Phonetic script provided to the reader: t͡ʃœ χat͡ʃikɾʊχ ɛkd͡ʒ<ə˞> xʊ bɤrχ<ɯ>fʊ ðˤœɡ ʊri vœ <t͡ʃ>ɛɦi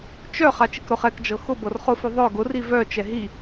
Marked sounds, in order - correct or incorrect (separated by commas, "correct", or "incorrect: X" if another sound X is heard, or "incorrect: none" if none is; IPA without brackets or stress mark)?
incorrect: ɤ, incorrect: ʊ, correct